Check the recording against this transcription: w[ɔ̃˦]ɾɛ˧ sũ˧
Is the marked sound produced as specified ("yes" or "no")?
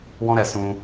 yes